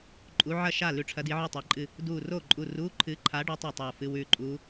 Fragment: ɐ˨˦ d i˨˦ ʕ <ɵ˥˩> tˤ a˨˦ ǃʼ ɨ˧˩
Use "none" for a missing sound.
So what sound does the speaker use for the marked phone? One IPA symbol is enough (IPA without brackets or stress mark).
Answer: ɵ˥˩